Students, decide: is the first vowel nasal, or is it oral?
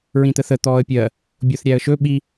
nasal